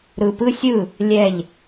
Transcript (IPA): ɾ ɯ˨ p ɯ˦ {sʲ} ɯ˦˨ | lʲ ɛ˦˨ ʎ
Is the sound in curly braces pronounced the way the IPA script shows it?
yes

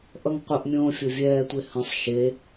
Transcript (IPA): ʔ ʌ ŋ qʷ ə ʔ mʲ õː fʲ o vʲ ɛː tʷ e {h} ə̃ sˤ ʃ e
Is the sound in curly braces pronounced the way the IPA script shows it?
yes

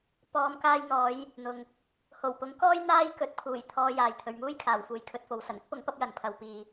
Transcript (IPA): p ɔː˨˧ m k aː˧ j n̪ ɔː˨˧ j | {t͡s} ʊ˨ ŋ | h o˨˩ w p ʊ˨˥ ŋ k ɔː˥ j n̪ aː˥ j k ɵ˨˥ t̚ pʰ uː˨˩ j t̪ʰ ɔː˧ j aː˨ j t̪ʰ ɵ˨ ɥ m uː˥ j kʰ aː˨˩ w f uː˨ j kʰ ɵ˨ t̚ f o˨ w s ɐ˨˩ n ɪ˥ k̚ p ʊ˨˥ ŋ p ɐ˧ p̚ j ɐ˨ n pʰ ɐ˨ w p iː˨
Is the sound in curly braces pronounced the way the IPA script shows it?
no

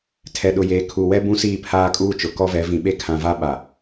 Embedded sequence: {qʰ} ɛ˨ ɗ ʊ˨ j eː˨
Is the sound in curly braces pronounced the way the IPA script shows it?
no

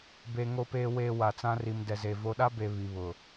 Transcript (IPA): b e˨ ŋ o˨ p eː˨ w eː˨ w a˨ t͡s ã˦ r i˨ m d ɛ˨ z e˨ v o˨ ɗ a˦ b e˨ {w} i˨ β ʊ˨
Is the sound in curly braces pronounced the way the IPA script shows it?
no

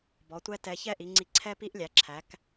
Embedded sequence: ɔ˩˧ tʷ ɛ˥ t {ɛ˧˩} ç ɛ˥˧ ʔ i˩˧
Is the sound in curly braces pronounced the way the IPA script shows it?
no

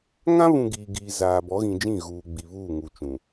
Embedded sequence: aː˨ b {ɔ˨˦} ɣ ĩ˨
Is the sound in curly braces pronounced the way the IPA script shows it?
yes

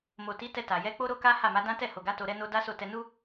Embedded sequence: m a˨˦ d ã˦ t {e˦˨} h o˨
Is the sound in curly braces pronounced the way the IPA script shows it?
no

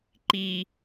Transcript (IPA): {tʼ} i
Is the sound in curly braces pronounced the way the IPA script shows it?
no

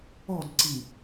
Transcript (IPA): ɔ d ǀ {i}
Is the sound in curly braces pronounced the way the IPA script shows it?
yes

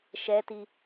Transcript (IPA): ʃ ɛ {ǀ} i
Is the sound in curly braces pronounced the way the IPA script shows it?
no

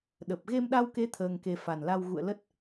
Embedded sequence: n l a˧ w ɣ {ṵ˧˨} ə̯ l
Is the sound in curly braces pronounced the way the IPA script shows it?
yes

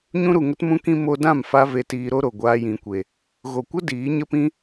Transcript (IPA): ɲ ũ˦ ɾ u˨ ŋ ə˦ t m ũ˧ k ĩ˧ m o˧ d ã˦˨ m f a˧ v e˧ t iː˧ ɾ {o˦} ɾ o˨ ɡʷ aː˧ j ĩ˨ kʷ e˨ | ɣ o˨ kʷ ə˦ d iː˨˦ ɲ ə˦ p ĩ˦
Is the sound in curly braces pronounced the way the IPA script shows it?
yes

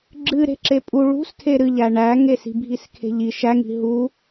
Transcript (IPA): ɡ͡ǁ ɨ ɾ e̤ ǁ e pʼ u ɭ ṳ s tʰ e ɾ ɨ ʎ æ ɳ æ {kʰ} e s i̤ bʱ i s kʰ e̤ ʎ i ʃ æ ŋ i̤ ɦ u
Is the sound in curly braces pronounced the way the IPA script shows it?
no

